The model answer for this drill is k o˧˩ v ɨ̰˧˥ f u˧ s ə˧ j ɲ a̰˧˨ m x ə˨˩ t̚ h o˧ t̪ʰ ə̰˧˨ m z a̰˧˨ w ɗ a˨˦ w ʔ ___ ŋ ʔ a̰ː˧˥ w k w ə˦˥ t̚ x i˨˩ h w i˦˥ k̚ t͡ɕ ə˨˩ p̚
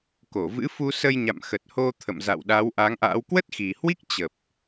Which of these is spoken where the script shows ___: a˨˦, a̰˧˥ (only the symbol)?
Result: a˨˦